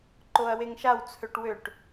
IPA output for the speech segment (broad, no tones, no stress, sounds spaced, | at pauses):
ǃ o ɐ̯ w e ŋ ʃ a w t͡sʰ ø ʈ w ø ʈ